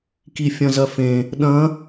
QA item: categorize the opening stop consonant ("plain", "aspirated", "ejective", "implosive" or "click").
plain